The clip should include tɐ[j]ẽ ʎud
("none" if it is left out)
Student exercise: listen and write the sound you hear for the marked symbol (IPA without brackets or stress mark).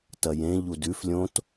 j